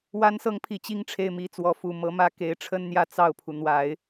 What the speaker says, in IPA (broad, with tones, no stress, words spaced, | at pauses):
wa˧˥nsɤ˧˥ŋpʰi˨˩ t͡ɕi˥ŋʈ͡ʂʰe˥˩ɪ̯mi˧˥t͡swɔ˧˥ fu˨˩mɤ˧˥mä˥ ke˧˥ɪ̯ʈ͡ʂʰə˥nn̪jä˥˧ t͡sɑ˥˩ʊ̯pʰu˩ n̪wa˨˩˦ɪ̯